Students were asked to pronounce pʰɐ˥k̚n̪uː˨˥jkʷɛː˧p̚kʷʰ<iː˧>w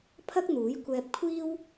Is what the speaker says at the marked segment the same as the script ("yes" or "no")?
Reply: no